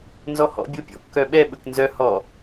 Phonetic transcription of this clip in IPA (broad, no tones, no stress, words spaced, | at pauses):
nzɔhɔ̰ bʲopʲɔ̰ kːœɓɛ ɓɵknzœ hɔ